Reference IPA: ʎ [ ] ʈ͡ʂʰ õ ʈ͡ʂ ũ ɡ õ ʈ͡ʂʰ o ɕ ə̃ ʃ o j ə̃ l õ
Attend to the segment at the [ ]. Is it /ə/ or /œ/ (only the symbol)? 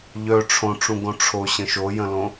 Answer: œ